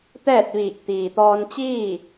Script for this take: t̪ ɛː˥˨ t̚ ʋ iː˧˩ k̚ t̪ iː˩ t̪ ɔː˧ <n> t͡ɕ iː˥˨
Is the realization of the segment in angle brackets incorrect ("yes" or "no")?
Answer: no